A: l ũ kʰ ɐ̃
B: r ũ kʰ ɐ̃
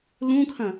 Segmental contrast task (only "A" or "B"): A